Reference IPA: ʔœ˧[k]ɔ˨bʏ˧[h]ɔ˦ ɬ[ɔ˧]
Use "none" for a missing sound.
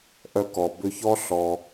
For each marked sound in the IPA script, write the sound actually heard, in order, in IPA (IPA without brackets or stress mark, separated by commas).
k, ç, ɔ˧